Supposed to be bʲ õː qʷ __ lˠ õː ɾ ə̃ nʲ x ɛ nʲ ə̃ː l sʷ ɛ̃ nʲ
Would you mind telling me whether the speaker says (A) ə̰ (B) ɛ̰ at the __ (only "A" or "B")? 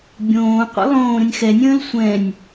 B